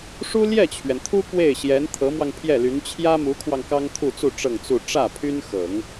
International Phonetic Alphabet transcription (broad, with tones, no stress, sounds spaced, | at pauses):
ʂ u˥ l j ɛ˥˩ t͡ɕʰ ɥ ɛ˩ n t̪ʰ u˥ k w e˥˩ ɪ̯ ɕ j ɛ˧˥ n t̪ʰ ɤ˧˥ m w ɑ˧ ŋ pʰ j ɛ˥˩ l y˧˥ n t͡ɕʰ j ä˥ m u˧˥ kʰ w ɑ˧ ŋ k ɑ˥ ŋ t̪ʰ u˥˧ t͡s u˥˧ ʈ͡ʂ ɤ˥˧ ŋ t͡s u˥˧ ʈ͡ʂ ä˥˩ pʰ y˥ n x ɤ˨˩˦ ŋ